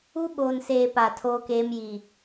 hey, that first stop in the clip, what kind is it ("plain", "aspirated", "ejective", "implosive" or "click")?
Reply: implosive